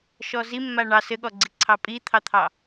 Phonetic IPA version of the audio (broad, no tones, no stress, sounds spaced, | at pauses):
ʃ ɔ z i mː a ɳ ɑ s ɘ ɠ ɔ ɡ͡ǀ i ǀʰ ɑ pʼ i t̪ʰ ɑ t̪ʰ ɑ